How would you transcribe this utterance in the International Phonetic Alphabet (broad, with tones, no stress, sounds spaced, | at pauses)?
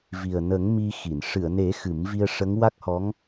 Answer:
v i˨˩ ə̯ n ə˨˩˦ ŋ m i˧ x i˨˩˨ n ʂ ɨ˨˩˨ ə̯ n e˨˩˦ x ɨ˨˩˦ m v i˧ ə̯ ʂ ə˧˥ ŋ w a˦˥ k̚ h ɔ˧˥ ŋ